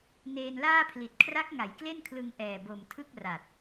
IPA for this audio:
n eː˧ n l aː˥˩ pʰ l i˨˩ t̚ kʰ r a˦˥ k̚ ŋ a˩˦ j k l e˥˩ n kʰ l ɯ˧ ŋ ʔ ɛː˨˩ b o˨˩ m tʰ ɯ˥˩ k̚ r a˨˩ t̚

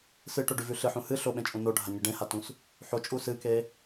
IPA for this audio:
s ɨ ʈ o ɖ ʉ v ʉ ɬ ɨ ħ ũ h ɨ ɬ o ɓ ẽ t͡ʃʼ ũ n o ɖʱ a ɲ ɨ ɖ ẽ h a t ũ s | ħ o t͡ʃʼ u s ɨ k e

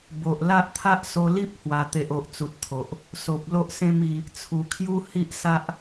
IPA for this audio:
b o˨ ʔ l a˦ ʔ t̪ʰ a˦ ʔ s o˧ l i˦ p̚ h w a˨˩ t̪ e˨ ʔ o˨ ʔ t͡s u˨ t̚ t̪ʰ o˨ ʔ | s o˨ p̚ l o˦ ʔ s ẽ˦ m i˧ | t͡sʰ u˨˩ kʰ j u˦ h i˦ ʔ s a˦ ʔ

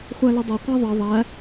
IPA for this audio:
χʷ æ l ʊ dˤ ɜ qʷ æ ðˤ ʌ ðˤ æ

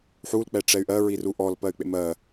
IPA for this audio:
ħ u l k͡p ɛ ʈ͡ʂ ɛ y̯ ʔ ɜ ɹ i r u ʔ ɔ l p ɜ y̯ k͡p ḛ m ɜ

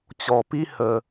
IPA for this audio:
t͡ɕ ɔ˧ p i˦ h ə˧

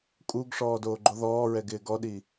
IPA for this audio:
kʼ u ɡ ʂ ɔː d oː ɡ͡ǃ o ð ɔː ɹ ɛ ɡ ɪː ɡ ɔ ɗ i

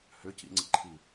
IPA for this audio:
h ʏ c ḭ ŋ͡ǀ ḭ ǃʰ i

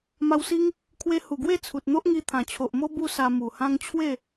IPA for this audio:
m a˧ w s i˦ ŋ | kʰ w e˧ h u˨˩ ɡ w e˥˧ t͡sʰ u˨ t̚ n̪ o˦ ʔ ŋ i˧ t̪ʰ ã˨˩ t͡ɕʰ o˨ ʔ m o˦ b u˦ s a˧ m u˨˩ h ã˦ ŋ t͡ɕʰ w e˥˧

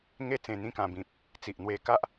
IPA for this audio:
ŋ e˦ t͡s ẽ˧ n̪ ĩ˥˧ k ã˧ b ĩ˨ p̚ | t͡s i˨ ʔ n̪ w e˧ k a˦ ʔ

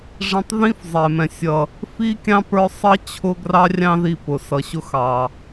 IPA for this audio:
ʐ ɛ̃˧ tˤ ð ĩ˦ f zˤ ɛ˨ m ɛ̃˨ sʲ ʌ˨ | f i˦ kʲ ɑ̃˦ p ə˞˦ sˤ ʌ˦ t͡ɕʰ ʊ˦ ɡ r ɑ˦ rʲ ɑ̃˦ ð i˧ p ʊ˨ s ʌ˨ ɕ ʊ˦ x ɑ˨

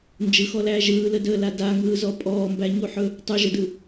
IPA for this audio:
n d͡ʒ ɯ x ɔ l æː ʒ ɯː l ə d əː l a d a ŋ ɯː z ɔ pʼ ɔː m b æ ɲ u ħ ɵ | tˤ u ʒ ə d ɯ

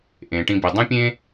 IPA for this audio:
ʔ ẽ˩ ʈ ĩ˨ b i˩ dˤ ə̃˦ pʲ ẽ˦

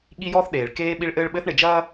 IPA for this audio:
ɠ i˦ j ɔː˦ θ ɗ eː˨ ɭ k eː˦ ɓ i˦ ɭ ʔ ɘː˦ ɭ ɓ ɘ˦ θ ɳ e˨ d͡ʒ ɐː˦

